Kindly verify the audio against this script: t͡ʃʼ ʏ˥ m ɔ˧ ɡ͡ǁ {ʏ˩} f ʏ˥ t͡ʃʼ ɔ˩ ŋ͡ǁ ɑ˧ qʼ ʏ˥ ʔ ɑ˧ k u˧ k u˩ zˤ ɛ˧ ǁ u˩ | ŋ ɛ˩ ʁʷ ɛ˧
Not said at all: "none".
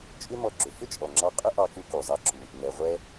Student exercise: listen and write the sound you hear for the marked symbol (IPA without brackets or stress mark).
ʏ˩